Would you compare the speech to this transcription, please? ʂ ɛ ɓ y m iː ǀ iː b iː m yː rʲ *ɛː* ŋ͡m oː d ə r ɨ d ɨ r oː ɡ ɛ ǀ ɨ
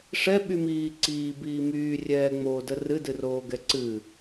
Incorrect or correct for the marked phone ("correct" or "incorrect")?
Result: correct